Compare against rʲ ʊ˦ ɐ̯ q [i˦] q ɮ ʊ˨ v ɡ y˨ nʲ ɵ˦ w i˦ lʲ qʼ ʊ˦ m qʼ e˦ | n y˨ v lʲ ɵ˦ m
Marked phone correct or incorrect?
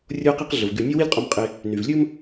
correct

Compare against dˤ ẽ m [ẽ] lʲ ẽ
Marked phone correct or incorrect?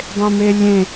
incorrect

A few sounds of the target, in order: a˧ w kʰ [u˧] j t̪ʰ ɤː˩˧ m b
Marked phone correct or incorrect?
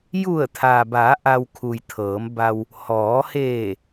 incorrect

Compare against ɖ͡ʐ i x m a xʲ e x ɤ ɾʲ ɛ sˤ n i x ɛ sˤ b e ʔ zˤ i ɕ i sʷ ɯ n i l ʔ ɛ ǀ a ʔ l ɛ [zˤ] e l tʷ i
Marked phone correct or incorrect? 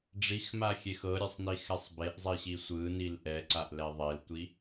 incorrect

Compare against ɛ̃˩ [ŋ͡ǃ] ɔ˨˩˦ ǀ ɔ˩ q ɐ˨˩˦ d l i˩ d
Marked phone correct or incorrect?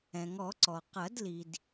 incorrect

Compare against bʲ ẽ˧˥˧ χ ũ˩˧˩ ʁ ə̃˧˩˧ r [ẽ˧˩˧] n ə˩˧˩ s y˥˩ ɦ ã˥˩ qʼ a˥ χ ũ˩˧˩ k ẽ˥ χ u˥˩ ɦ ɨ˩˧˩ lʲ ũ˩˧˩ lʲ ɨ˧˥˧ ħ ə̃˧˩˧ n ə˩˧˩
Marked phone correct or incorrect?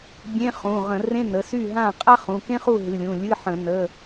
incorrect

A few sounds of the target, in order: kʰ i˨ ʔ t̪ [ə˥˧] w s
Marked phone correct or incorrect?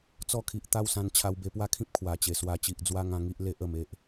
incorrect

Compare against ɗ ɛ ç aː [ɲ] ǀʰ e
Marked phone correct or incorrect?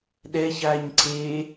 correct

